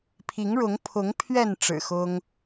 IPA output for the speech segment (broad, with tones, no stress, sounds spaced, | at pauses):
pʰ i˨˦ ŋ ɻ ʊ˨˦ ŋ pʰ ʊ˨˦ ŋ pʰ ɥ ɛ˥˨ n ʈ͡ʂ ɻ̩˨˩ x ʊ˦ ŋ